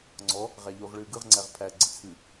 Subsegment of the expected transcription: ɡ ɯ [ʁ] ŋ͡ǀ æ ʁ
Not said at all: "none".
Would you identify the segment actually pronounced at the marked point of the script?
ʁ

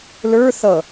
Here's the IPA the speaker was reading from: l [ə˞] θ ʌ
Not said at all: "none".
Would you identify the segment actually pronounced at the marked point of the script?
ə˞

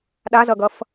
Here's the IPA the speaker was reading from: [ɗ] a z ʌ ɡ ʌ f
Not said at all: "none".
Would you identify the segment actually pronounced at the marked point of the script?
ɗ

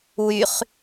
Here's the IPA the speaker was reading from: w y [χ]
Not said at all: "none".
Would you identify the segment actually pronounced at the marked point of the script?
χ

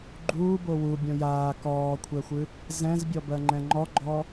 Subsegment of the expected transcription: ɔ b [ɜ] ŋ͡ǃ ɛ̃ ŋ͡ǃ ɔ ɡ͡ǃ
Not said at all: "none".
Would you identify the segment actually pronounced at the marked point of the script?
ɜ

